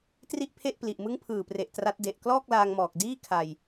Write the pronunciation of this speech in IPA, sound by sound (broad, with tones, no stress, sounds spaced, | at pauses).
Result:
t r i˥˩ ʔ pʰ e˥˩ ʔ p l i˨˩ ʔ m ɯ˦˥ ŋ pʰ ɯː˨˩ p r e˨˩ ʔ t r a˦˥ t̚ d e˨˩ ʔ k l ɔː˥˩ k̚ l aː˧ ŋ m ɔː˨˩ k̚ d iː˥˩ kʰ a˧ j